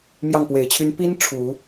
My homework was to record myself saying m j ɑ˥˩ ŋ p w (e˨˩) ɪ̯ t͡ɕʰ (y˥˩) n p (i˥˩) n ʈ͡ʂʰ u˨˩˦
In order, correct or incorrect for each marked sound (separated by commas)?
correct, incorrect, incorrect